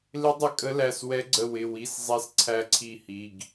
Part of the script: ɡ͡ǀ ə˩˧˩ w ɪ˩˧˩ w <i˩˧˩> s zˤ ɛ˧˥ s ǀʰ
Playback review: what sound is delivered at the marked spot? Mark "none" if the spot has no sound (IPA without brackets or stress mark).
i˩˧˩